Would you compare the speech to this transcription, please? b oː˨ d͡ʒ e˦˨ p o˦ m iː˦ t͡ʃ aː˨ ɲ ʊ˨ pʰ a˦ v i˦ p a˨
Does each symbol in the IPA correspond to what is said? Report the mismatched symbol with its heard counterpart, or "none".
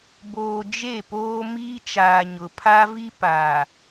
o˦ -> oː˦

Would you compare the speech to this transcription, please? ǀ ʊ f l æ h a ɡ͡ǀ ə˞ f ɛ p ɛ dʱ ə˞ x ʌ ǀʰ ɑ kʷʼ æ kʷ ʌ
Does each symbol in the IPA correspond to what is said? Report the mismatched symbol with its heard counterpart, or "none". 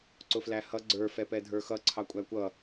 a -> ʌ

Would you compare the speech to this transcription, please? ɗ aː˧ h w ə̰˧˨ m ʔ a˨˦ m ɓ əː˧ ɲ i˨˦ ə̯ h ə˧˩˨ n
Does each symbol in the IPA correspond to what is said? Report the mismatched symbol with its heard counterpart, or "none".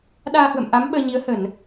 none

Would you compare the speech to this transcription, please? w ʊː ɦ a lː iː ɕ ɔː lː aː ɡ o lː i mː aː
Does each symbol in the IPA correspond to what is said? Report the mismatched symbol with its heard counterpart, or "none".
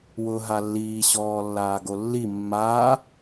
none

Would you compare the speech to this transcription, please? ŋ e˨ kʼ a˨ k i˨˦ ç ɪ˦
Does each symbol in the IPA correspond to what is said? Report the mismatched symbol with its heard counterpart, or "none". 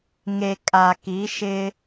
ç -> ʃ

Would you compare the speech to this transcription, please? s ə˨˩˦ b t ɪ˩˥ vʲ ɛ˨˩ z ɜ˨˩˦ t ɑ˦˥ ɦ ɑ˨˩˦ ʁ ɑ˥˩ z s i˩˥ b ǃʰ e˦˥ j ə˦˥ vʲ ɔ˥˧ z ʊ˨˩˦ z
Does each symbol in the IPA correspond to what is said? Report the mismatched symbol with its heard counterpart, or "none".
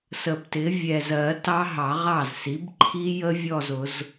e˦˥ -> i˦˥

